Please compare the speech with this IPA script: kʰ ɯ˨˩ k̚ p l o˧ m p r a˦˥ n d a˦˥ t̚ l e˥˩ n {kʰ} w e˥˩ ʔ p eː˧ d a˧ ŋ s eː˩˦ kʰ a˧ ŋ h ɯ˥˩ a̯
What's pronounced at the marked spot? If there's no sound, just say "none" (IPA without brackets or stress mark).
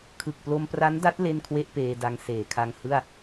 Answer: kʰ